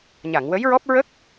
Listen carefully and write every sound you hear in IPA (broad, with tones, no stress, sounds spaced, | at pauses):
ɲ a˨˩˨ ŋ w ə˧˥ j ɹ ɔ˦˥ p̚ ɹ ə˦˥ k̚